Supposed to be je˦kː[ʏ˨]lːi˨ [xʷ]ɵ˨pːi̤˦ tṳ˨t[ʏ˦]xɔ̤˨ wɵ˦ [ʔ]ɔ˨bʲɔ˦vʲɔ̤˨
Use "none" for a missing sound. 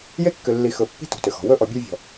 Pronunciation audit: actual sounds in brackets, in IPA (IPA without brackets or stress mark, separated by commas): ʏ˨, x, ʏ˨, ʔ